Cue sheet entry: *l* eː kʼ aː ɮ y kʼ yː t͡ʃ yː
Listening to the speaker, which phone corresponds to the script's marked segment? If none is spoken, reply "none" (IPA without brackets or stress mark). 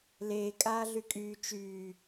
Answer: l